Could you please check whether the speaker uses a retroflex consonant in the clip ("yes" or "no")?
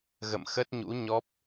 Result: no